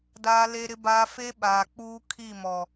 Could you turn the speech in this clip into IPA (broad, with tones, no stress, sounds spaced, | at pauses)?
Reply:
d aː˦ l e˦ ɾ ɪ˦ b aː˦ f e˦ ɓ aː˨ k͡p uː˦ kʰ i˦˨ m ɔ˨